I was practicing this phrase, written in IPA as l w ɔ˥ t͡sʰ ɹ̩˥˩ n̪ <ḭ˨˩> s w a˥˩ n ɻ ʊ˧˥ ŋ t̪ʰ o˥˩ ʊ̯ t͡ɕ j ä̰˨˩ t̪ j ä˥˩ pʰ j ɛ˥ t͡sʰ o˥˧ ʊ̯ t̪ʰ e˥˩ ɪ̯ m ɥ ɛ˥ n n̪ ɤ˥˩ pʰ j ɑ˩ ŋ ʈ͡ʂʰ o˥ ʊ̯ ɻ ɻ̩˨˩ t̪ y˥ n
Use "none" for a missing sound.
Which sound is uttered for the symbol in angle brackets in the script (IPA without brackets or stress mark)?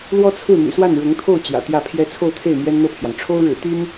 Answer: y̰˨˩